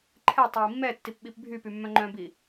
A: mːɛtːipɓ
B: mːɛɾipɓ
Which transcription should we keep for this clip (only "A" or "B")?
A